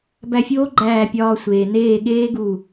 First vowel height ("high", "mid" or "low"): low